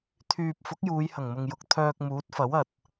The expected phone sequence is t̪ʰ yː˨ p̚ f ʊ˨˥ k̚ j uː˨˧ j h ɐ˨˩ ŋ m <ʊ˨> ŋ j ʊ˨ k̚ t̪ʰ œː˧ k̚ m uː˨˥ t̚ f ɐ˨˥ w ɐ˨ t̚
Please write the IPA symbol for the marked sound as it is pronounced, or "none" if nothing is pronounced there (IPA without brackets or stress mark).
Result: ʊ˨